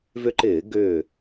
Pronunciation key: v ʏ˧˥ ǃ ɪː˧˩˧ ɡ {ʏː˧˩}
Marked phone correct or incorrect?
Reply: correct